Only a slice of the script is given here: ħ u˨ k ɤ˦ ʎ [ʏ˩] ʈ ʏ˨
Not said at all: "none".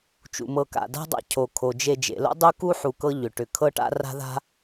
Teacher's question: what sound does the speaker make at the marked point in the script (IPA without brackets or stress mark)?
ʏ˩